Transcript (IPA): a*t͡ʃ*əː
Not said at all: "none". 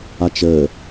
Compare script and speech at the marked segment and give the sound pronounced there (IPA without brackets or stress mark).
t͡ʃ